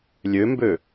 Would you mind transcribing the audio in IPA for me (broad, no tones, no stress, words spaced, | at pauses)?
lʲømbø